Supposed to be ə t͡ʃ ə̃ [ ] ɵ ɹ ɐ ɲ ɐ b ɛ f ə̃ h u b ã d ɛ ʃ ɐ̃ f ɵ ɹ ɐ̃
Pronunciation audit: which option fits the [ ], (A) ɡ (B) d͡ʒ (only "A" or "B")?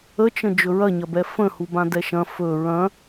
B